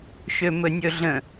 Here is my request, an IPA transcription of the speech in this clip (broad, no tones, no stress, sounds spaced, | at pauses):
ʃ ø m ɵ nʲ ɵ ɮ ə̃